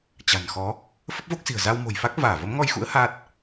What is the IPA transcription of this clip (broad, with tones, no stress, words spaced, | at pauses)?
t͡ɕa̤˨˩nxɔ˨˦ | fə˦˥p̚vo˦˥k̚si̤˨˩ə̯ za˧wmo̤˨˩jfa˦˥k̚ vaː˧˩və˨˦mŋɔ˧jxṵ˧˥ə̯ ha˦˥t̚